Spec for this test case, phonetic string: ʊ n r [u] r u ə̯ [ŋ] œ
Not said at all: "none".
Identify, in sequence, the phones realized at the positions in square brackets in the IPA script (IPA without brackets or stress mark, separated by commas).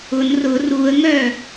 ʊ, ŋ